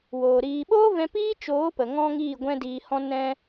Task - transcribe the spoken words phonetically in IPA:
woː˨ ɾiː˨ɓoː˦vɛ̃˧ piː˦t͡ʃoː˨˦pə˨ ŋɔ̃˦ŋiː˦˨ ɡʷɛ̃˦diː˧hɔ̃˦ nɛ̃˧

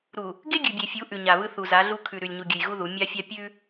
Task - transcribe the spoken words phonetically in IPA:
ɾu˨ | ɡe˦ɡʲʉ˨bʲe˨fʲu˨˦ ʔʉ˨ɲa˨βɯ˦ θu˨za˨˦ɮu˦ kʰʉ˨ ɾʉ˨lʲɲu˨ɡʲʉ˨j ɣu˦ðu˨˦ mʲa˦fʲa˦ pʲʉ˦

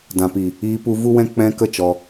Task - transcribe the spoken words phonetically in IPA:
dã˨pi˨ | iː˧pu˧ vu˦wɛ̃˦ k͡pɛ̃˧ kə˦ t͡ʃɔ˧

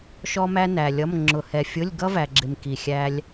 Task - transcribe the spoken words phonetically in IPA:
ʃɔ˥mæ˥næ˨lʲʌ˧˥˧m ŋ͡ǁʊ˨hɛ˨fʲʊ˧˥˧lʲɡʌ˥ væ˨ɡ͡ǁɪ˨m ki˨xʲæ˥lʲ

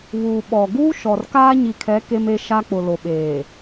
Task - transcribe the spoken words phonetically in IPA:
βuː˨ɓɔ˨ ɡuː˦ ʃɔ˨r kaː˦ɲi˨kʰɛ˨˦ ke˦me˦ ʃa˦k͡pʊ˨lo˨ɓeː˨

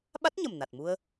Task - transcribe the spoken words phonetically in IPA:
ɓa˦˥t̚ɲə˨˩m na˨˩t̚mu˧ə̯

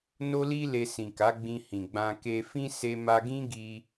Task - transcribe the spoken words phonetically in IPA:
no˦li˦ le˧sĩ˨ka˨˦ ɡ͡bĩ˧hĩ˨ ɡ͡bã˧ ke˧fĩ˦ se˧ma˧ɡĩ˦ɡi˧

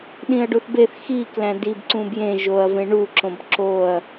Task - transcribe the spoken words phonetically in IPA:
ɗĩɐ̯ɖuθbeθ xi klæ̃dib ǀũbjẽ ʒoɐ̯ vẽɳu ǁõbǁoɐ̯

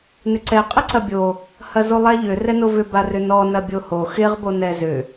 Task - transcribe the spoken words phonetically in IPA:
nʏǀɛ qʼɪǀɐbʲo | hɐzolˠɛʎʏ rɛnovʏ barʏnɔ nɐbʲoho xɪʁ bonɛzʏ

